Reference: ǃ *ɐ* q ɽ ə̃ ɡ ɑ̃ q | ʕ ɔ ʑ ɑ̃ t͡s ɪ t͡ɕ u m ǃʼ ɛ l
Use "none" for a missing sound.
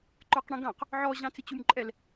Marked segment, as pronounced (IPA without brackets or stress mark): ə˞